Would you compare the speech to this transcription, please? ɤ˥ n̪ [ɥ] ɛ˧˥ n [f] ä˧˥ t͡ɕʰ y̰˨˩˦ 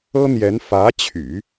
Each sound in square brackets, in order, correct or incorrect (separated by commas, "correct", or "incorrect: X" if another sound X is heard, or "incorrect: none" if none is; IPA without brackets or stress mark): incorrect: j, correct